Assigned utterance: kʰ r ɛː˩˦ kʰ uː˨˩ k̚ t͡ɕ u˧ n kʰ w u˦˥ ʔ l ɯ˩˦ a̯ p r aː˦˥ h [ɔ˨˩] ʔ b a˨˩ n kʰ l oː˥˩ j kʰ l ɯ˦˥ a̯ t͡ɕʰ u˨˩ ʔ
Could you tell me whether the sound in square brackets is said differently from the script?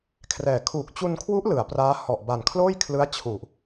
no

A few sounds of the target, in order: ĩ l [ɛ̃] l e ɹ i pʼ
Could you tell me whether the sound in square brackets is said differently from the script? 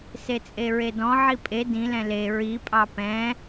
no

